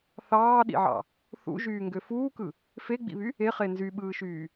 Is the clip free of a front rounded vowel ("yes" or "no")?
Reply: no